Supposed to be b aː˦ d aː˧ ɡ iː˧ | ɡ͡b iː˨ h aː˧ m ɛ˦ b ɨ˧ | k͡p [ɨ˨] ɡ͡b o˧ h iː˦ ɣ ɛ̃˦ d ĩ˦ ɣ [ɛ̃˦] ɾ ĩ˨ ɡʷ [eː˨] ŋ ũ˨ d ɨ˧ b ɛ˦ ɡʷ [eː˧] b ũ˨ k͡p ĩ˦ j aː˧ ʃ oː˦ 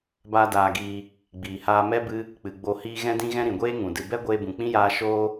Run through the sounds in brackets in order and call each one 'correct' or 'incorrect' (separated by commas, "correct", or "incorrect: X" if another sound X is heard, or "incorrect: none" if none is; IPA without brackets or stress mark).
correct, correct, incorrect: eː˦, correct